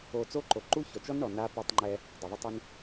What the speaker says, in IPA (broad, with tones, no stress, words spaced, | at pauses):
o˨ t͡so˦ǃo˨ ǃu˦çɔ˨t͡ʃɔ˦nɳɔ˨ na˦ pɛ˦tˤŋ͡ǃɛ˦ | dˤʊ˨ðˤɪ˦tˤʊ˦n